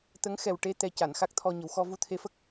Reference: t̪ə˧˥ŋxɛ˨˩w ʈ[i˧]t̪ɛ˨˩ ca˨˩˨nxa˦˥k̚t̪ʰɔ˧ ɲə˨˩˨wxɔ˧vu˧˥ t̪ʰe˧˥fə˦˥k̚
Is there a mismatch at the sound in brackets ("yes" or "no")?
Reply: yes